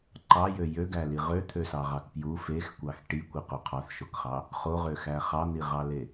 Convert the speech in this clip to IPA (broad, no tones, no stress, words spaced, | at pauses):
ǃɑjø jøɡæli ʁøt̪ʰøsɑʁɑk pju fexkʷɑx ʈikʷiqo qʰɑθʃokχɑ | χoʁøxæ χɑn̪iʁɑle